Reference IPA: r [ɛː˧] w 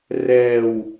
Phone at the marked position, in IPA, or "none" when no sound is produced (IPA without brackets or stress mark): ɛː˧